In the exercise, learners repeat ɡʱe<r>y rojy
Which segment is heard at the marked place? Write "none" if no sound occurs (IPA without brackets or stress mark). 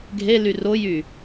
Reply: l